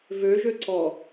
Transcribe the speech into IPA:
vø ʒøǀɔ

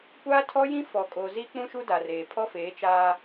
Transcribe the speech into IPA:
kʷaː˦tʰɔ˦jĩ˦ fɔ˨kʼo˨zi˦ k͡pũ˦ʃu˦da˨reː˨ pʰɔ˦feː˨˦ t͡ʃaː˦

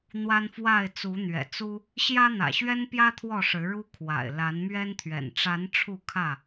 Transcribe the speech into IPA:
n̪wa˦n fwa˥˨ɪ̯ t͡su˨˦n̪ɥɛ̰˨˩t͡su˦ | ɕjä˦n̪ä̰˨˩ɕɥɛ˦npjä˦ t̪ʰwɔ˥˨ʂɻ̩˨˦ɻu˦kʰwa̰˨˩ɪ̯ la˨˦nmɥɛ˦n t̪ʰɥɛ̰˨˩n ʈ͡ʂa˨˦n ʈ͡ʂʰu˥˨kʰä˥˨

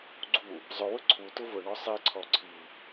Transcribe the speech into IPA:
ɡ͡ǀu | zˤʊwʊ ǀʰu tʊvʊɳɔ sˤiǀʰɔ ǀʰi

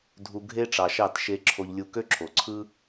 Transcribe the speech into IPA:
dʱu˨ ɡʱe˦ʈ͡ʂɑ˨ʃɑ˦˨t ʃe˧ ǁʰo˧ʎlʲu˧ kø˦ǁʰo˨ǀʰɯ˦

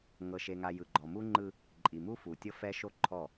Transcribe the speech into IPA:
ŋɤ˨ʃe˨ŋa˨ jɯ˨ɡ͡ǃɔ˨mu˦ŋ͡ǃɯ˦ | ǃʼi˨mu˦ fu˨tʲɤ˦fɛ˦ ʃo˦ǃʰɔ˦˨

